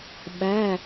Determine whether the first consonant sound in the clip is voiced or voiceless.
voiced